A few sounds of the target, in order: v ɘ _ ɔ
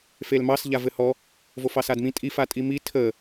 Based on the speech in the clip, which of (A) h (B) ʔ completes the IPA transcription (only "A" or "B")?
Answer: A